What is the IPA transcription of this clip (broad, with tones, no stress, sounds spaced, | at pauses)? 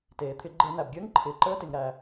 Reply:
t eː˩ t̪ʰ ɪ˧˩˧ ɡ͡ǃ e˧˩˧ n̪ æ˩ b ɡʲ əː˧˥ ŋ ǃʰ ɪː˩ ǃ əː˧˥ t ɪ˩ ŋ ɾ æ˩